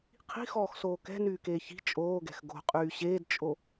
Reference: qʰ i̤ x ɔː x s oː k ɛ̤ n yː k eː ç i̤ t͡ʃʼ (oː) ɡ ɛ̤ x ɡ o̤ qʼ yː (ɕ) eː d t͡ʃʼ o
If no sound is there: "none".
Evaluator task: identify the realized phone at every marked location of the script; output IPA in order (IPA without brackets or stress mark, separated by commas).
oː, ɕ